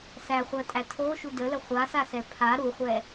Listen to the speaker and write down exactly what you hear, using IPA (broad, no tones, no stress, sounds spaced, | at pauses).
s æ χʷ ɜ tʼ æ tʰ o ʃ u d ə l ə χʷ a s a s ɛ pʰ a ɾ u χʷ ɛ